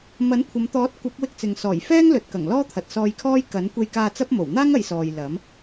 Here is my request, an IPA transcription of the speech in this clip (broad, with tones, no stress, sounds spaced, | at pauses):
m ɐ˨˥ n kʷʰ ɐ˨˧ m t̪ ɔː˨˥ t̚ kʷ ɐ˨˥ p̚ w ɪ˧ k̚ t͡s ɪ˨ ŋ s ɔː˨˩ j f ɛː˥ ŋ l ɵ˨ t̚ k ɐ˨˩ ŋ l ɔː˥ t̪ʰ ɐ˨ t̚ s ɔː˧ j kʰ ɔː˥ j k ɐ˨˥ n kʷ e˧ j k aː˧ t͡s ɐ˥ p̚ m o˨˩ w n̪ aː˥ ŋ ɐ˨˧ j s ɔː˨ j l ɐ˨˥ m